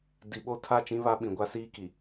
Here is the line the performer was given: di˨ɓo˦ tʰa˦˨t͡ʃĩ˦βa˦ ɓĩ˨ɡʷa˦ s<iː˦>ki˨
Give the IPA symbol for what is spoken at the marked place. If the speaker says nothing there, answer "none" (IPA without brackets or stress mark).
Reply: iː˦